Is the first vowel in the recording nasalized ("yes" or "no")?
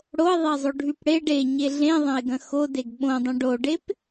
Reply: no